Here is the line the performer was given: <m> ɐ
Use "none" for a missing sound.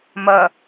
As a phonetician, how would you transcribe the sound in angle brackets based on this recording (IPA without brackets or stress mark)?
m